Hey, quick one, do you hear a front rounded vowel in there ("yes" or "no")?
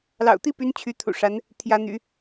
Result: yes